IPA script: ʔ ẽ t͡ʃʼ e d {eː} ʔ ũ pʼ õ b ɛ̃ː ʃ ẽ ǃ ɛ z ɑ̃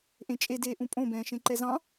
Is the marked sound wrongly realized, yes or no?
no